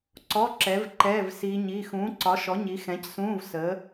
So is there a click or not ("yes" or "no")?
yes